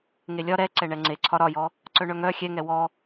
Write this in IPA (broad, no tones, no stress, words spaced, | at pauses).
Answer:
ŋelʲɒ ɾɛ ǀɛɳɛŋ͡ǀe ǀʰɒɾɒjɔ | ǀœɳœŋœ xʲɛŋɛ wɔ